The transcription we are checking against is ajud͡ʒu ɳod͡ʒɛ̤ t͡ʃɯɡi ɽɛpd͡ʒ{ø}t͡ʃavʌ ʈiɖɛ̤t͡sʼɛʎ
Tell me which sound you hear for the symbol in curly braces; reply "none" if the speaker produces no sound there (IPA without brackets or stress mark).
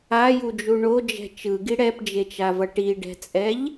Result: e